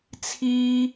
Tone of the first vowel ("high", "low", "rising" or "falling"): high